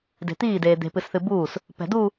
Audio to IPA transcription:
d e̤ t̪ iː d eː d̪ e̤ p ɨ s θ ɨ b uː s | p ɛ̤ d u

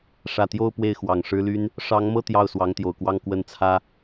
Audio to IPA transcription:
ʂ ä˨˩ t̪ j o˥˧ ʊ̯ p w e˥˩ ɪ̯ x w ɑ˨˩ ŋ ʂ ɻ̩˥ l y˥ n | ʂ ɑ˧˥ ŋ m ɤ˥˧ t̪ j ɑ˥˩ ʊ̯ s w ɑ˧˥ ŋ t̪ j o˨˩ ʊ̯ k w ɑ˥˧ ŋ k w ə˥˩ n t͡sʰ ä˥

